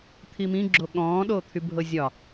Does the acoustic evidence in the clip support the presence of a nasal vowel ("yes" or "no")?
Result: yes